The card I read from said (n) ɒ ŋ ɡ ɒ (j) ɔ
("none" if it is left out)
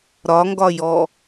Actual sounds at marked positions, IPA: ɾ, j

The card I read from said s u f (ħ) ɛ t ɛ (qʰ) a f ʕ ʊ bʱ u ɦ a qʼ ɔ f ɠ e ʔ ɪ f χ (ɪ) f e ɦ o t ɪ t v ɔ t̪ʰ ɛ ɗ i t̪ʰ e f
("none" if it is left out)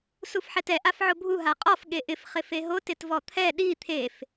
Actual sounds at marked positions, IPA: ħ, ʔ, ɪ

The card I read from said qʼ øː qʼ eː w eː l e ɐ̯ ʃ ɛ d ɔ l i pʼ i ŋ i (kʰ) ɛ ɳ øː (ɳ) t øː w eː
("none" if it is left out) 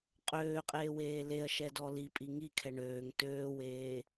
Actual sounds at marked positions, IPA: kʰ, ŋ

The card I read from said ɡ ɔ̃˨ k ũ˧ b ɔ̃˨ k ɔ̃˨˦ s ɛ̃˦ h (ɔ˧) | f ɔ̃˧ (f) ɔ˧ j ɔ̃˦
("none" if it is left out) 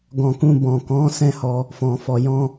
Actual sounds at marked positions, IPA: ɔ˧, f

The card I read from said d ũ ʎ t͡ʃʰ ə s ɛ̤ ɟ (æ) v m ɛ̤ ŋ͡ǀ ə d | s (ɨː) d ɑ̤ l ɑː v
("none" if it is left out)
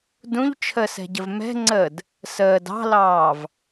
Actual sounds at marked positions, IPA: ə, əː

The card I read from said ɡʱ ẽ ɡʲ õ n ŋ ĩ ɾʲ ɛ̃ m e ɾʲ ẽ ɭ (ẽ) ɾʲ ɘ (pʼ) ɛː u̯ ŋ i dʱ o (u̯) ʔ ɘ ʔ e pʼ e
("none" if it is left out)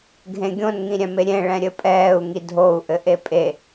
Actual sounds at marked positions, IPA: ɛ̃, pʼ, u̯

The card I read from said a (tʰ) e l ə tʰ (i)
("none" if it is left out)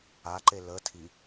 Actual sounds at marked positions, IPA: ǃ, i

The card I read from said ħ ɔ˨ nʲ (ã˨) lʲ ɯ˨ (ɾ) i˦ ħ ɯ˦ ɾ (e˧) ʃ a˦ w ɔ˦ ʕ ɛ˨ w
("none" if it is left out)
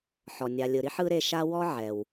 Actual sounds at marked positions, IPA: a˨, ɾ, e˧

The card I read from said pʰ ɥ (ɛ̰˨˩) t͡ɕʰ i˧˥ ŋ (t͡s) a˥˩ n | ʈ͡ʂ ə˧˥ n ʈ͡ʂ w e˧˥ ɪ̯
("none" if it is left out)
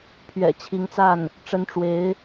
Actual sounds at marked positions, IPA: ɛ̰˨˩, t͡s

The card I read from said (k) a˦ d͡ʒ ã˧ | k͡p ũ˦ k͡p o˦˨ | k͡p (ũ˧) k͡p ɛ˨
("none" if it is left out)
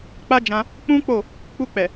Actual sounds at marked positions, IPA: k͡p, u˧

